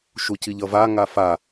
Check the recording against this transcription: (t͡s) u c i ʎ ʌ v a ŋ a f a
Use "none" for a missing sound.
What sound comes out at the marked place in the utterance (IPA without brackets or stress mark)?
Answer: ʃ